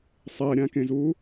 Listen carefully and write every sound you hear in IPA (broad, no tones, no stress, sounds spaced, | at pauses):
sˤ ɛ ɾʲ ã k ẽ z u